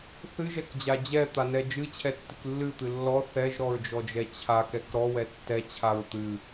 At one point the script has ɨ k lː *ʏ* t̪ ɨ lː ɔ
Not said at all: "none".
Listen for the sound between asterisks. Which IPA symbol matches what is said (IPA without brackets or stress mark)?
ɨ